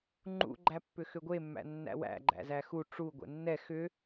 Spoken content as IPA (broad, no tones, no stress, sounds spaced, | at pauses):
ŋ͡ǃ ṵ ɡ͡ǃ æ pː ʏ x ʏ ɡʷ e mː æ̰ nː æ̰ w æ̰ ɡ͡ǃ æ̰ z æ x u ʈ͡ʂ u ɡʷ ɛ̰ nː ɛ x ʏ